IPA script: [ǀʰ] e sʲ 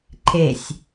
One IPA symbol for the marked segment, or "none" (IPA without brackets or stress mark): ǃʰ